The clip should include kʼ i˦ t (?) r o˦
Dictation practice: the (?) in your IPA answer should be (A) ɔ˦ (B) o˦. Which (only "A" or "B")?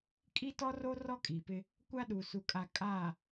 A